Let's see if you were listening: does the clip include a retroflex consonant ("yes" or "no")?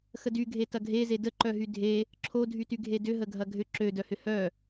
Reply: no